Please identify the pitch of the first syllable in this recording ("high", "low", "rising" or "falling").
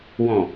low